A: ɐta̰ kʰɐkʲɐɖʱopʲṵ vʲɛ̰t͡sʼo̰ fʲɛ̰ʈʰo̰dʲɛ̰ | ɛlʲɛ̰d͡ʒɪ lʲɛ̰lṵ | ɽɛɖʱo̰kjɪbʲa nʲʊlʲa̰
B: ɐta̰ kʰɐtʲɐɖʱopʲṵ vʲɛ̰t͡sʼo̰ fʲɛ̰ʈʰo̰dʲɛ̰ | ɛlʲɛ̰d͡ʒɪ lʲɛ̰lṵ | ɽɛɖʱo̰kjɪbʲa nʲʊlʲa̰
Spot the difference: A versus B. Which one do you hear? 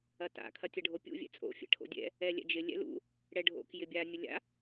B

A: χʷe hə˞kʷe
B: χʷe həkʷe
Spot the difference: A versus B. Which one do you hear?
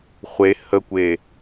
B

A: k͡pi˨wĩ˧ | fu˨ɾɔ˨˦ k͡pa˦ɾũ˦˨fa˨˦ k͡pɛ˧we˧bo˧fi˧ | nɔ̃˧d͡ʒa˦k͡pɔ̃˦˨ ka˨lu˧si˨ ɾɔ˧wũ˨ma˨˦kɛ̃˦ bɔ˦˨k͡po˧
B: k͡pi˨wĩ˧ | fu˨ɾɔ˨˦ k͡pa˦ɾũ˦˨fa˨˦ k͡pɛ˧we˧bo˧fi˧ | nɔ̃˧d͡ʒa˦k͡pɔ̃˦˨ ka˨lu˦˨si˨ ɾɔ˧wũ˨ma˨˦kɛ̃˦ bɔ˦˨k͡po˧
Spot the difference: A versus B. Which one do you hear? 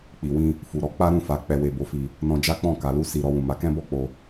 A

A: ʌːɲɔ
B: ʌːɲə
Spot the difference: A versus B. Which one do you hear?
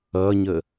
B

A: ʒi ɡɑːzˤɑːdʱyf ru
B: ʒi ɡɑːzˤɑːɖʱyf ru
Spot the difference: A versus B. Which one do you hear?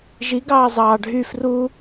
B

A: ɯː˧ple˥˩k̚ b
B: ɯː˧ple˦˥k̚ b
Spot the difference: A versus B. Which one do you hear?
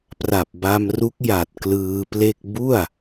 A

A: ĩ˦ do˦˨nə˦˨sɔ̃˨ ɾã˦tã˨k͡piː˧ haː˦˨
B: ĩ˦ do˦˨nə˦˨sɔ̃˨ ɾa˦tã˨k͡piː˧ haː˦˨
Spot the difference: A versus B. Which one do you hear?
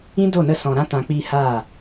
A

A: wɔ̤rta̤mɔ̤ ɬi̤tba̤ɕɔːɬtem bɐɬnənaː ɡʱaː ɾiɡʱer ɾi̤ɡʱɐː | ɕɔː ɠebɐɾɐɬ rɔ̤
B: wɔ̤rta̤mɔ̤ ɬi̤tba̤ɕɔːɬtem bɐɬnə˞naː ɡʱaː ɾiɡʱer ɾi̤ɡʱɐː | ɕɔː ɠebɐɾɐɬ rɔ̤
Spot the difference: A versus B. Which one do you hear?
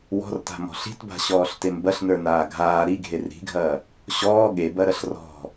B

